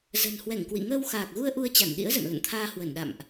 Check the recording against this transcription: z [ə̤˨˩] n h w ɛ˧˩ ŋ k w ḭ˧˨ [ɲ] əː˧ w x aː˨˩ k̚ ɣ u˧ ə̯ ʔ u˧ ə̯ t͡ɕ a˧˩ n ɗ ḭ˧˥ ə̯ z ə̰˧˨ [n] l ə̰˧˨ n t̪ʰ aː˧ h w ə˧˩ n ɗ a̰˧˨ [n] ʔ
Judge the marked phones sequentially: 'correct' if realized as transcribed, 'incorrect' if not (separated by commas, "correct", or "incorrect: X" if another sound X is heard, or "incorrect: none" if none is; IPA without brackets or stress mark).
correct, incorrect: ŋ, correct, incorrect: m